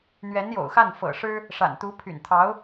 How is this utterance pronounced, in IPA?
n̪ɥɛ˧˥njo̰˨˩ʊ̯xa˥˩n fɤ̰˨˩ʂɻ̩˥ | ʂa̰˨˩nt̪u˧˥ pʰy̰˨˩nt̪ʰɑ˧˥ʊ̯

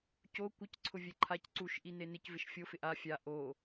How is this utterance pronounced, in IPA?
co kʷɪc ǀʰʊvʲɛǃʰac ǀuʃ ʔinenɪc vɪʃfʲo fɪʔa fʲa ʔo

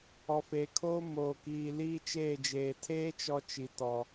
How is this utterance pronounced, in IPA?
ɔ˨feː˨kʰoː˦ moː˨kiː˨ liː˦t͡ʃeː˦˨d͡ʒeː˨ tʰeː˦t͡ʃɔ˨ t͡ʃi˨tɔ˨

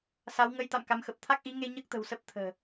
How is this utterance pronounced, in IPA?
sa˨˦w ŋə˨˦j t̪a̰˧˨mka˨˦mxə˨˩p̚ t̪ʰa˦˥k̚ʔi˨˦ŋe˧ ɲəː˦˥k̚t̪ə̤˨˩w sə˦˥p̚t̪ʰə̤ː˨˩

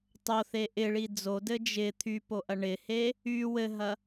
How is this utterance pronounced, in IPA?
tˤoθe ʔɪɭi d͡zodɘ d͡ʒɪ t̪ʰypo ʔɐɳɪhe | y wɘɦɐ

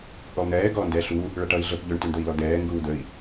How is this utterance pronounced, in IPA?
ʔulˠn̪ɛː ɡɔːndɛ ɬu | ɭʌʈʌi̯ɮəp ʎɵɳ tʉɳd̪əi̯lɔd̪ɛː ŋɡuːd̪əi̯

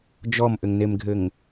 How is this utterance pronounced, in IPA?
d͡ʒɔmʔɘŋnemɡʱɘŋ

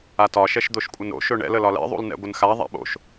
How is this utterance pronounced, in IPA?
atɒ ʃɛʃd̪oʃkʷʼənɾo̰ ʃɵɳɛ̰l əlɒlɛ̰ ðˤṵlnɛ̰ɡʷənxa ðˤa̰ɓo̰ʃ

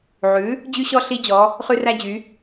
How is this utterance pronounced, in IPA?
ʕʉ˩˥ | d͡ʑy˥ɕɔ˥ ɬi˥d͡ʑɔ˩˥ | χʉ˥ræ˥d͡ʑy˩˥

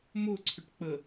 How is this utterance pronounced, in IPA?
mʊǀʰʏʈ k͡pə

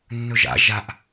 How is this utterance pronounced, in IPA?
nːɵʒa̰ ʒaʔ

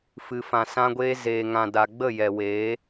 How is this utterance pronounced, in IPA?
fɨ˨fã˨sã˧ɡʷeː˧ zeː˨ŋã˨ da˨ɡ͡bə˦˨jɛ˨weː˨˦

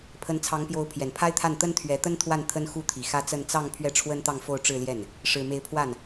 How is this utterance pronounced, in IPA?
pʰə˧˥nt͡sʰɑ˧˥ŋpjo˧˥ʊ̯ pʰjɛ˨˩npʰa˥ɪ̯t̪ʰa˥˩n t̪ə˥nt̪ʰɥɛ˧˥t̪ə˥n t̪ʰwa˥˩nt̪ʰə˥nxu˥t̪ʰi˨˩ xä˥t͡sə˥˧n t͡sɑ˥˧ŋ pʰɥɛ˥˩ʈ͡ʂʰwə˥nt̪ɑ˥˧ŋfo˥˧ʊ̯ ʈ͡ʂɻ̩˥˧ljɛ˥˩n | ʂɻ̩˨˩me˧˥ɪ̯pʰwa˥˩n

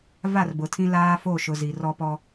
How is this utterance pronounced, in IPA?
va˦˨rbʊ˨tʰĩ˦ laː˦fo˦˨ʃʊ˨ zi˨rɔ˦ pɔ˦

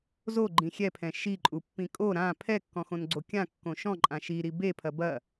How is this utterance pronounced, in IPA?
zoɡ͡ǃĩ xʲɛpʰɛ̃ ʃiǃʼupːĩ kʼo ɾã pʰɛkːɔ̃xõnɡ͡ǀo kʲãkːõ ʃɔ̃ǃʼã ʃiɾi bepʰɐ bɐ

